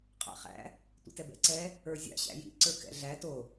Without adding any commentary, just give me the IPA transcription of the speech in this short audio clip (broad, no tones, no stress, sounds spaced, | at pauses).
qʼ a̰ χ æ̰ | tʷ ḭ t ɛ b ɛ̰ ǀ ɛ | ə˞ zʲ a̰ ɕ æ̰ j ḭ ǀ ə˞ k ɛ̰ ɮ æ t o